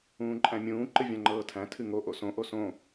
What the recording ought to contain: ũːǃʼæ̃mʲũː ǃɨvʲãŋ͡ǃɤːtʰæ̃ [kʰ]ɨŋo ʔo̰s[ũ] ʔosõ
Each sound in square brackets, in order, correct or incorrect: incorrect: tʰ, incorrect: õ

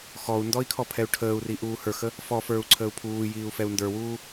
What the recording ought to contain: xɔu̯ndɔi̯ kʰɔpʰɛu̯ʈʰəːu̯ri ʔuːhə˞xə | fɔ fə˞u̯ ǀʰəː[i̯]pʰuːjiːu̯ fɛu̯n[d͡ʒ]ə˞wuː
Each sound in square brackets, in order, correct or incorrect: incorrect: u̯, incorrect: d

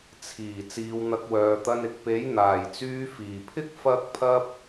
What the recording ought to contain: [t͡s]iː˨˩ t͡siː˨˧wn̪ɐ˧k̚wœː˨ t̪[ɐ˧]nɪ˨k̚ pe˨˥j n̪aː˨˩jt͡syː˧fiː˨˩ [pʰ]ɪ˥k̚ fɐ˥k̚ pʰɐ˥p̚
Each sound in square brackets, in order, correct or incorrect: incorrect: t͡sʰ, correct, correct

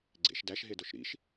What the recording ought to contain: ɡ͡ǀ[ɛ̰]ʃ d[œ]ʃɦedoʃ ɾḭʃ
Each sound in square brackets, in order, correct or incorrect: incorrect: ḛ, incorrect: æ

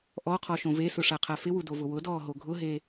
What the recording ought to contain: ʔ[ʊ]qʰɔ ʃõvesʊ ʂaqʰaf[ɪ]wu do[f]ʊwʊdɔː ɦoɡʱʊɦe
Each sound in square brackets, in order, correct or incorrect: incorrect: ɔ, correct, incorrect: v

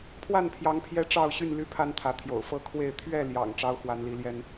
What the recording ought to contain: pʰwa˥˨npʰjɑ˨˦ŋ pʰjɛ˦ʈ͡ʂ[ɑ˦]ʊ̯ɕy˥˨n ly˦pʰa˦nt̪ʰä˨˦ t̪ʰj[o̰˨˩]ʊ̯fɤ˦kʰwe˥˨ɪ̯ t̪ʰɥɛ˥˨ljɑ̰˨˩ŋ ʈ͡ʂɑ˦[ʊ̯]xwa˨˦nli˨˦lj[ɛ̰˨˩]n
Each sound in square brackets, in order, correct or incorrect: incorrect: ɑ˥˨, correct, correct, incorrect: ɛ˦

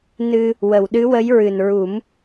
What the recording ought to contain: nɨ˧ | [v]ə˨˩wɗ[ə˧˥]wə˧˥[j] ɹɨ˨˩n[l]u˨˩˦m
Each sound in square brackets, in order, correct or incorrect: incorrect: w, incorrect: ɨ˧˥, correct, incorrect: ɹ

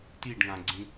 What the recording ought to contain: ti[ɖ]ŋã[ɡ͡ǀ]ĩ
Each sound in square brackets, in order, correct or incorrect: correct, correct

